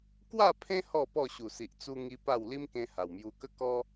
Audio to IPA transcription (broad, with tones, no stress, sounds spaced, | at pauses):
k w a˥˧ pʰ ẽ˦ h ɔ˥˧ p ɔ˥˧ ɕ u˨˩ s i˨ ʔ t͡s u˧ ŋ i˦ p a˥˧ w l i˦ m k ẽ˧ h a˨˩ w m j u˧ k ə˦ k ɔ˦